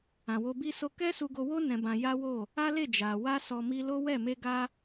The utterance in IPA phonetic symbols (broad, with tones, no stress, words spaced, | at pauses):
ã˨wo˧ bi˦so˦ kɛ˦su˧ɡo˧wo˦ nɛ̃˧bã˧ja˦wo˦˨ | a˦le˦˨ d͡ʒa˨ wa˧sɔ˨mi˧ lo˦wɛ˦˨ me˧ɡa˧